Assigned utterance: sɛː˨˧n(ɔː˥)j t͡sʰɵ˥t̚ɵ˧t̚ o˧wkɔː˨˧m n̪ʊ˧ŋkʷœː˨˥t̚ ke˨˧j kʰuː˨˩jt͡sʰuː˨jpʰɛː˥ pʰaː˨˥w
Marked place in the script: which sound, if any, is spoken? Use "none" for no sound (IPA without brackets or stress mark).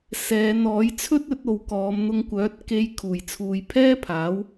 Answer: ɔː˨˥